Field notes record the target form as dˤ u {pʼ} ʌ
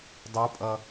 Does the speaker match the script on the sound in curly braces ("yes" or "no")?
yes